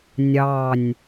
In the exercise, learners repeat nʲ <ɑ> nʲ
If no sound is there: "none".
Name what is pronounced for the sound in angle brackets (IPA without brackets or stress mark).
ɑ